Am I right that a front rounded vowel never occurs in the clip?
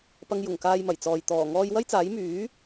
no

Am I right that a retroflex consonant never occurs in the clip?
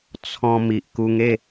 yes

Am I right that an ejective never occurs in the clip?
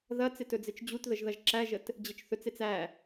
yes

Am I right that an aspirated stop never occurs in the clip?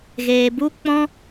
yes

